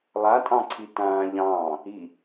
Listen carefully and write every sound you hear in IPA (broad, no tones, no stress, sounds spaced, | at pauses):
lˠ a tʼ ɑ̃ ǀʰ i t ãː ʎ ɑ̃ː | i